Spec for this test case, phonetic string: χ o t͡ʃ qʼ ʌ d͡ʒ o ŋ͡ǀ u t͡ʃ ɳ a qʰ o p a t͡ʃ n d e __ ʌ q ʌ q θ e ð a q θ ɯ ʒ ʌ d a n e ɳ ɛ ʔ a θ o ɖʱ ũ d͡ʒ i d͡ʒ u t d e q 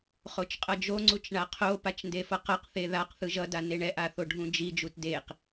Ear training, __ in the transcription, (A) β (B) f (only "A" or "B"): B